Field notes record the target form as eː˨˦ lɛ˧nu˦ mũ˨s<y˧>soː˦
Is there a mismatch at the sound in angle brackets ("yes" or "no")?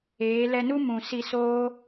yes